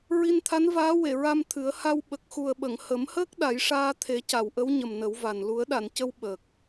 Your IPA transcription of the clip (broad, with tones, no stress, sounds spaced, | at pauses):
ɹ i˧ n t̪ʰ a˧˥ n v aː˧˥ w e˨˩˨ ɹ a˧ m t̪ʰ ɨ˨˩˦ ə̯ h a˧ w ɓ ə˨˩ k̚ x u˨˩ ə̯ ɓ ə˨˩˨ ŋ h ə˨˩˦ m h əː˦˥ k̚ ɗ a˨˩˦ j ʂ aː˧ t̪ʰ e˨˩˦ c a˨˩˨ w ʔ ə˧˥ w ɲ ə˨˩ m n ə˨˩˦ w v a˨˩ n l u˨˩˦ ə̯ ɗ a˨˩˨ n c ə˧ w ɓ ə˨˩ k̚